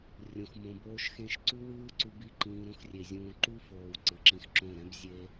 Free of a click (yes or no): no